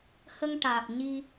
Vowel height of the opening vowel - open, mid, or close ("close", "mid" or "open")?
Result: mid